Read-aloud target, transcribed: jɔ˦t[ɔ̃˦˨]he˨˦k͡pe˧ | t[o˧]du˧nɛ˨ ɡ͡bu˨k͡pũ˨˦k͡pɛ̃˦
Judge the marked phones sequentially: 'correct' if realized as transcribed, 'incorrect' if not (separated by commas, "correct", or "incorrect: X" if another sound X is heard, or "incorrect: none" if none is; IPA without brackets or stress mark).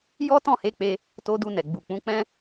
correct, correct